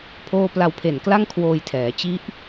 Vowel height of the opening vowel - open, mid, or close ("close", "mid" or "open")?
mid